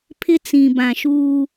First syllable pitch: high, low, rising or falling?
high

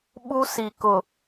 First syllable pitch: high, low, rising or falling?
high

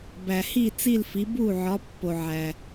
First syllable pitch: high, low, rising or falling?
low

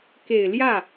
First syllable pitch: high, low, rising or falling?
low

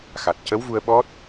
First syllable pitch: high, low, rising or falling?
low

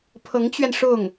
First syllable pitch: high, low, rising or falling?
rising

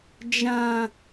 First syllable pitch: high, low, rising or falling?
low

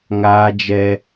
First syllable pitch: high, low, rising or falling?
high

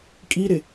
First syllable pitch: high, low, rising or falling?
high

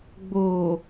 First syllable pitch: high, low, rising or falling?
low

